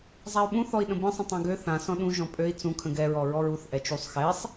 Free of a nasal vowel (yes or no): no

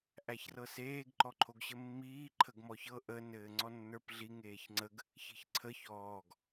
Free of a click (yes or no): no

